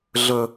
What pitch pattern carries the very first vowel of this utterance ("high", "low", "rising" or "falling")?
high